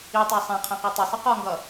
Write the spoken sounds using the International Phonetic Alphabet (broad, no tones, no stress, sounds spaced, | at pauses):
i tˤ ɜ sˤ æ̃ qʰ æ̃ q æ tˤ ʌ sˤ ʌ q ɒ ŋ ɡ ʌ